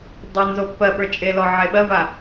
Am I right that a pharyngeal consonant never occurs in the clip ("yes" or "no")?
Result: no